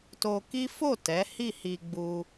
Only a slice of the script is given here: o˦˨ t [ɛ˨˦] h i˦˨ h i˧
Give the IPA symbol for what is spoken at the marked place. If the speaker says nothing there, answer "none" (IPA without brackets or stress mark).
ɛ˨˦